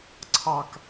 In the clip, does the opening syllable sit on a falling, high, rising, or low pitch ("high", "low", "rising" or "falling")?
high